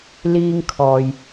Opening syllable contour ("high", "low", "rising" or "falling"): high